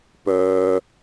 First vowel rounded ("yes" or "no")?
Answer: yes